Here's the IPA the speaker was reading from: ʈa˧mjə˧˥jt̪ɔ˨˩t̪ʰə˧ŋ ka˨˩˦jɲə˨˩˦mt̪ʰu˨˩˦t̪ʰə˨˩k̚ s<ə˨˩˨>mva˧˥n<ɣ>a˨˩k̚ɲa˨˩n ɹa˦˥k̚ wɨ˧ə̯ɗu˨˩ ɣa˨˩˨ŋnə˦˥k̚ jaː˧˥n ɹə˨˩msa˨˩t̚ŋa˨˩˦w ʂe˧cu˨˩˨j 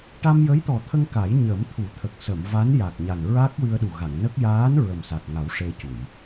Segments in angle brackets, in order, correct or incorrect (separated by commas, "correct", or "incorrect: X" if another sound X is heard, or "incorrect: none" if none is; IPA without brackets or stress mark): correct, incorrect: j